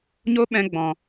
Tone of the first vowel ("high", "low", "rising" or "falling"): high